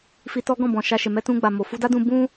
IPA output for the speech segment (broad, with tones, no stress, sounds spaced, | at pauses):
f i˧ t ɔ˦ ɡ ɔ̃˦˨ b ɔ̃˨ ʃ a˧ ʃ e˨ m ɛ˧ t ũ˧ ɡ͡b a˨ m o˨ f u˧ d a˦ d ũ˧ b ũ˦